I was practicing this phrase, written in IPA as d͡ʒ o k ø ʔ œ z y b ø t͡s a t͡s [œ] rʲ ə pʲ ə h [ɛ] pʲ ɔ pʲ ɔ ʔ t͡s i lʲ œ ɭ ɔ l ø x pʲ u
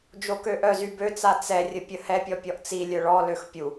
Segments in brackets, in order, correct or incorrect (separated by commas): incorrect, correct